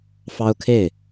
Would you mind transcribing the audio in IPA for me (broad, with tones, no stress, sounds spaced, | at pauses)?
f ɑ˥ ʊ̯ kʰ e˥˩ ɪ̯